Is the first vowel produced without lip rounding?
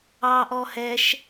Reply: yes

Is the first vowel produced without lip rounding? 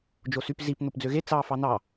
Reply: no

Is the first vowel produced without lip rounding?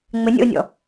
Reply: yes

